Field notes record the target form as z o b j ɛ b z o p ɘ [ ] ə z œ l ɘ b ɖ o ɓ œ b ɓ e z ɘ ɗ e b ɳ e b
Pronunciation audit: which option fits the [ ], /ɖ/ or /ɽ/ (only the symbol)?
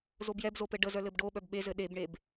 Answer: ɖ